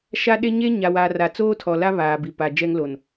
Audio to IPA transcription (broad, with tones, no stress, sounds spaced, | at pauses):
ʃ a˦ ɗ e˦ ɲ e˦ ɲ a˨ w a˨ r a˨ t͡s oː˦ tʰ ɔ˨ l a˦ β aː˨ b i˨ p a˨ d͡ʒ ɛ˦ ŋ l o˨ n